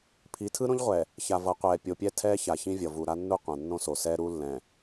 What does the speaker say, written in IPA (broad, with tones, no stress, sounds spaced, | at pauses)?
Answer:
pʰ i˨˦ tʰ ɯ˦ ɾ õ˦ ʎ ʁʷ ɛ˨ | ç a˨ v ʌ˨˦ qʷ ɛː˨ pʲ o˨ pʲ ɛ˦ tʰ ɛː˦ ç a˨ ç ĩ˦ vʲ ʌ˨ v u˨ ɾ a˦ nː u˦ qʷ ã˨ nː õ˦ s o˨ s ɛː˦ ɾ u˦ lː ɛ̃˨